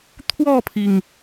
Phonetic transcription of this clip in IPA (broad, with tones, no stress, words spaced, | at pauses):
t̪ʰwɔ˥˨pʰi˩ŋ